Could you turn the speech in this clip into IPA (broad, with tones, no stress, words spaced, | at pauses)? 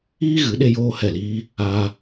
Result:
iː˦ɣɨ˨˦ ɗe˦joː˦hɛ˦˨liː˦ | aː˧